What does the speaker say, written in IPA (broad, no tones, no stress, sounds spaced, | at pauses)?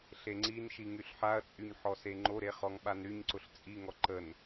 ɬ e ŋ͡ǀ i n ʃ i ŋ y ɬ ħ a ɐ̯ t͡sʼ y ɲ ħ ɔ s e ŋ͡ǃ o ɾ e χ ɔ ŋ ɓ a n ɾ y ɲ ǀ ʊ ɬ t͡sʼ i ŋ ɔ ǃ ə n